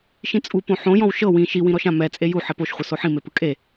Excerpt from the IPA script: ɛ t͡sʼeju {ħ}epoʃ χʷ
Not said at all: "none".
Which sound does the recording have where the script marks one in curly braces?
ħ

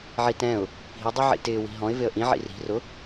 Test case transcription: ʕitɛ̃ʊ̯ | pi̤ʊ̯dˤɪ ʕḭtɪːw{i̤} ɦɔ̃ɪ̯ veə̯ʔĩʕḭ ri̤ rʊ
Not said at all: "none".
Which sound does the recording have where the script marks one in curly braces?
i̤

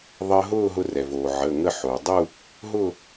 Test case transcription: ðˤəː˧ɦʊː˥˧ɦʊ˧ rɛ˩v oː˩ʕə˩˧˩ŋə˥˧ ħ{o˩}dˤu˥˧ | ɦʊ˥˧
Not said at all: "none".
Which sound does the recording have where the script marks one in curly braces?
o˩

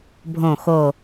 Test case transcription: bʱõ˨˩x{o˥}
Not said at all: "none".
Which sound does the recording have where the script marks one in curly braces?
o˨˩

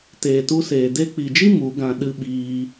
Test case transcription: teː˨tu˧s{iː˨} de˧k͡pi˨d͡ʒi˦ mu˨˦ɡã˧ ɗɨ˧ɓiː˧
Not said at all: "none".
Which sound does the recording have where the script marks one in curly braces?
eː˨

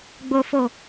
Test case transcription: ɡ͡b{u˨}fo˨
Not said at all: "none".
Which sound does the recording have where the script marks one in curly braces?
o˨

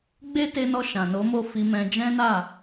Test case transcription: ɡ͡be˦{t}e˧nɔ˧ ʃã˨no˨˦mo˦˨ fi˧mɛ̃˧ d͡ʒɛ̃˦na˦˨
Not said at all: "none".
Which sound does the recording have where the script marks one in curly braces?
t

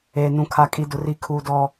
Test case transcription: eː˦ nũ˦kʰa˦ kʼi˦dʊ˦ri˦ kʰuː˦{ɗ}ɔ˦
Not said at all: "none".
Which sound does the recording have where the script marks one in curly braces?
d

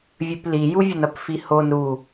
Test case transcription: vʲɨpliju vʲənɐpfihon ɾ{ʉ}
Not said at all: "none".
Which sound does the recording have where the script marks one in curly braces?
u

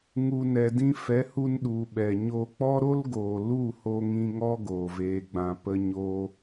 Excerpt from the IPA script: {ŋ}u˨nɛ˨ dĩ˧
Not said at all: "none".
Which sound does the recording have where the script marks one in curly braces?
ŋ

